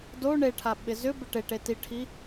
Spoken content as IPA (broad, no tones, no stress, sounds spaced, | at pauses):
d o ɳ e ʈʰ a ɓ ɪ z ʏ b ɪ ʈ e ʈ e t i ʈʰ i